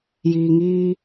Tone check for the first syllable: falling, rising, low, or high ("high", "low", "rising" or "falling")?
low